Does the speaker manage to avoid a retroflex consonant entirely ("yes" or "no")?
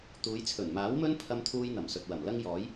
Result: yes